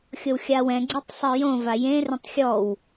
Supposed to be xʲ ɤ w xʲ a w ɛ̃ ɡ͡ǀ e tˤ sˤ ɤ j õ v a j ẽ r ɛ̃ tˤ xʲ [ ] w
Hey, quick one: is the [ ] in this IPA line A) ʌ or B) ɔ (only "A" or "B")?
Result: B